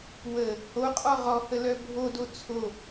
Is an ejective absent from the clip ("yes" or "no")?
no